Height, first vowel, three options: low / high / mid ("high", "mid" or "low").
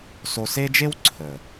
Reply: mid